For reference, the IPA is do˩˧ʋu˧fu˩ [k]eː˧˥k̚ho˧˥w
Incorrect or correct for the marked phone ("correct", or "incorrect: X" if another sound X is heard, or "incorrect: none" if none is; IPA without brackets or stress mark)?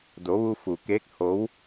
correct